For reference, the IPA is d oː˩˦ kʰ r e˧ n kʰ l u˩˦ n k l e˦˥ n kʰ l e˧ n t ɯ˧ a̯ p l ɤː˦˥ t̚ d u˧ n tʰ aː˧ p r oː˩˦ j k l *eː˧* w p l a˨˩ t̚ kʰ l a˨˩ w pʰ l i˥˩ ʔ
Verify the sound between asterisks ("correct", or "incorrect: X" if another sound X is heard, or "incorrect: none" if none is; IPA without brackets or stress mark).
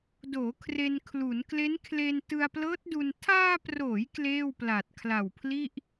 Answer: incorrect: eː˥˩